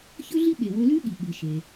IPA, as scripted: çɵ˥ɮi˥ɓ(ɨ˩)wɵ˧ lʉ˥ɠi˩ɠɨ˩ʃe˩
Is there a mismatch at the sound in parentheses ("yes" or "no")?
yes